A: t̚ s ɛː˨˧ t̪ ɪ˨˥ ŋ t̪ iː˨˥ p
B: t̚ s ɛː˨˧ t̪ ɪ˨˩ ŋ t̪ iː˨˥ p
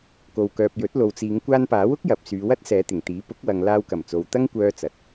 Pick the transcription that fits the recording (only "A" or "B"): B